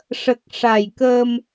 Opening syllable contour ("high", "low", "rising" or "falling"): low